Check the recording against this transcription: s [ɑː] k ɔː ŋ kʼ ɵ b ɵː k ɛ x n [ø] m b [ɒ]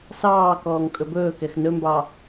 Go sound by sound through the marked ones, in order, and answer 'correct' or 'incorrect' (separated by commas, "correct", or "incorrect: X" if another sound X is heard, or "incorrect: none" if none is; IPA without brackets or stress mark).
correct, incorrect: ɵ, incorrect: ɑ